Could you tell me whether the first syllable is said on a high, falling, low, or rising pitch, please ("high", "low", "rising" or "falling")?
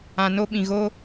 low